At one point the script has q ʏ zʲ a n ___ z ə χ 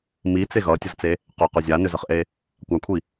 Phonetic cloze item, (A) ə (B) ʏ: B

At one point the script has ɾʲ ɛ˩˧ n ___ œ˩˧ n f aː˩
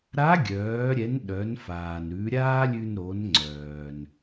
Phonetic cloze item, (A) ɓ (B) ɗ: B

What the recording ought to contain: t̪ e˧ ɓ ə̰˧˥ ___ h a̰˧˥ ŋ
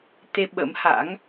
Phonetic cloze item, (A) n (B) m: B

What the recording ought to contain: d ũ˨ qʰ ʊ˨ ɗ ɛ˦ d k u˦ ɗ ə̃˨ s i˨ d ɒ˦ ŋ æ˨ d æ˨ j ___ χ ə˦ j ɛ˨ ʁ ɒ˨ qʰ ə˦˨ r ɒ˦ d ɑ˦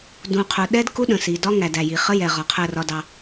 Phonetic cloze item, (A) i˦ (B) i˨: B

